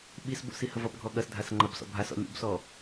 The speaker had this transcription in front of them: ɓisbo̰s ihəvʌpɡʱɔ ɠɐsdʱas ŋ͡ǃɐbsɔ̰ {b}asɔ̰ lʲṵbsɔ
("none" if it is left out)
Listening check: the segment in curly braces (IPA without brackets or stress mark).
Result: bʱ